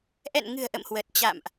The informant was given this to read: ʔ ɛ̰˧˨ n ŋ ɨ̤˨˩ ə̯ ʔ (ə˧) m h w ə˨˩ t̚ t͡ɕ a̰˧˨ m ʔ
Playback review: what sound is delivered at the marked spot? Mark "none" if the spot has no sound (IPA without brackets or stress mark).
ə̰˧˨